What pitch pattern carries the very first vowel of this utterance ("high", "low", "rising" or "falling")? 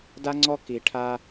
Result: high